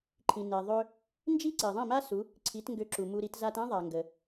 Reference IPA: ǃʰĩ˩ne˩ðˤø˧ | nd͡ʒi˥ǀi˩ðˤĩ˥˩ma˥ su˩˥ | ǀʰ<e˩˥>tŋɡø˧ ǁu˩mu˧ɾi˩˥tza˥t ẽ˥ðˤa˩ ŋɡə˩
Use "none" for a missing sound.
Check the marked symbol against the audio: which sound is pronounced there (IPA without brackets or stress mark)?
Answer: i˩˥